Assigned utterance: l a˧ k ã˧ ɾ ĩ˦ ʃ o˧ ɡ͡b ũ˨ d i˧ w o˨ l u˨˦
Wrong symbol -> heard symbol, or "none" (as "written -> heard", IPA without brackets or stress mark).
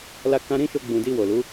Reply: none